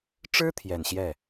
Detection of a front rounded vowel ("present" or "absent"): absent